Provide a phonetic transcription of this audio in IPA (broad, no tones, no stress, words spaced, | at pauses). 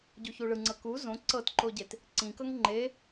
ɟuçuɭɯŋ͡ǀɤ ku zõ ǀɤtǃoɟet | ǀĩkɤŋ ŋ͡ǃe